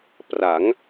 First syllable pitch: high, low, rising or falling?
rising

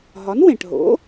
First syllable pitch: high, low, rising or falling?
rising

